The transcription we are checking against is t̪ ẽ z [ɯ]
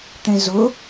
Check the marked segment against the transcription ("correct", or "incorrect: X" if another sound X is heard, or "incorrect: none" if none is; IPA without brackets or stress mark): incorrect: ʊ